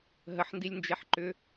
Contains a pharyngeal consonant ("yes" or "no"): yes